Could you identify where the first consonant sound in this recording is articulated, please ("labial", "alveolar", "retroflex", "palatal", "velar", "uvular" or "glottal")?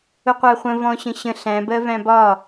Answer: uvular